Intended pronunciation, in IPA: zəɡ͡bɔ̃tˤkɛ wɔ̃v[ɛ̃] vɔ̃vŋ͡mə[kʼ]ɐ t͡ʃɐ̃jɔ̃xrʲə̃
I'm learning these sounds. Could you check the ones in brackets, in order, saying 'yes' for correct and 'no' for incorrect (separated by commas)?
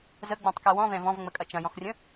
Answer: yes, yes